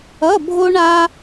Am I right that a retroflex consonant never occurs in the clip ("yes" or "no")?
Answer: no